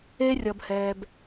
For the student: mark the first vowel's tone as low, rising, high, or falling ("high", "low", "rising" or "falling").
high